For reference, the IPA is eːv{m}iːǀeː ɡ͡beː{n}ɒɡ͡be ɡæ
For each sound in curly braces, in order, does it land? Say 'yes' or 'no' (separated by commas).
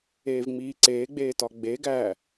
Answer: no, no